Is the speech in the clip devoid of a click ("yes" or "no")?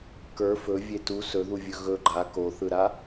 no